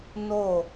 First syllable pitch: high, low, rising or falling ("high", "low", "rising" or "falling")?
falling